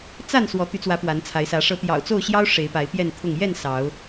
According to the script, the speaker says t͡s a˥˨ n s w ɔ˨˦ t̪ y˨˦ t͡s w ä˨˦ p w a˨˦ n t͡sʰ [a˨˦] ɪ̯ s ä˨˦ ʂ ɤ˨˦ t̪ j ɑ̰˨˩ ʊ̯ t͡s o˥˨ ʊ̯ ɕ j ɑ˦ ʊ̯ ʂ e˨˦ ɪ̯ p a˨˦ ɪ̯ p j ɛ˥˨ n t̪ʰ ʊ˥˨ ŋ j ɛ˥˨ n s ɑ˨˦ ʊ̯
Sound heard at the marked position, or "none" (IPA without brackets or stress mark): a˨˦